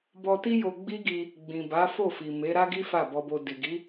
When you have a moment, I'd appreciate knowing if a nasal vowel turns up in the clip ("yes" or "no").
yes